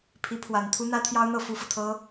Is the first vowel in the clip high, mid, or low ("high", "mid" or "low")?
high